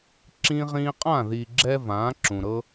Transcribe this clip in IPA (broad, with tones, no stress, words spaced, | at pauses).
ǁĩ˦ʁĩː˦ qʼã˦˨ði˨ɡ͡ǁɛ˧ vãː˨˦ǁũ˨ ɾɤ˦